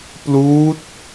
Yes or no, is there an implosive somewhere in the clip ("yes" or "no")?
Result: no